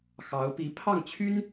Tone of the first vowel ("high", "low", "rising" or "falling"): rising